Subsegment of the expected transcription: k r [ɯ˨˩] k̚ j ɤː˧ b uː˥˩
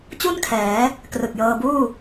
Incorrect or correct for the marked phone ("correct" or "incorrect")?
correct